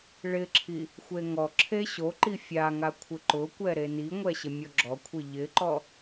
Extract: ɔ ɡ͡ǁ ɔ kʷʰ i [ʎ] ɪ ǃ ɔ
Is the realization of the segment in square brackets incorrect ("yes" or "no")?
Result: no